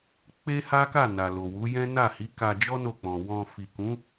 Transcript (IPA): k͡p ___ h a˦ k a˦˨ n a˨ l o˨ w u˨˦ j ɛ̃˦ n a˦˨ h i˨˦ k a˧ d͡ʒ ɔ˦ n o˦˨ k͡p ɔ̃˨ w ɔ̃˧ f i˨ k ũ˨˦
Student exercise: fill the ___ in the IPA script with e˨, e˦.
e˦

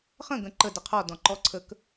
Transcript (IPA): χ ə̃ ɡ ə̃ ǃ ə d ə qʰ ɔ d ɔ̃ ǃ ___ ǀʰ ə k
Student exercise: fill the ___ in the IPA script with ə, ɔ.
ɔ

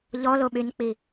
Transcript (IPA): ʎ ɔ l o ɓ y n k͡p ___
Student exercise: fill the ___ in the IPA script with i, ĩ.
i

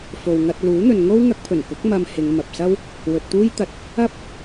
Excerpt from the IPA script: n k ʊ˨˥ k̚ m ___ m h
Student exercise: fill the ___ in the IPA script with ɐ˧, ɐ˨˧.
ɐ˧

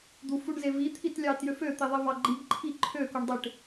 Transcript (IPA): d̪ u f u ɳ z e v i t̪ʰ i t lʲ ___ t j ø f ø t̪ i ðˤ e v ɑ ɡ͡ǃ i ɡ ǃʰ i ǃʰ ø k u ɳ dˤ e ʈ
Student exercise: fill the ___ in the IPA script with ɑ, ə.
ɑ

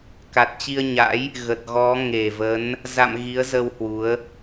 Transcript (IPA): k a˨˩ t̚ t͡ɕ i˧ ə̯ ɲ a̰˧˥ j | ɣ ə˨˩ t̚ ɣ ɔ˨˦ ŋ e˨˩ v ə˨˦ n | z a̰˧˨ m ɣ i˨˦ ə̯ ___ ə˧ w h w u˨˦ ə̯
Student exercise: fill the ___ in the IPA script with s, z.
z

